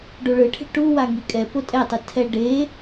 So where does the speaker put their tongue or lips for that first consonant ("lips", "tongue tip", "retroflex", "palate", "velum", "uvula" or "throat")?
retroflex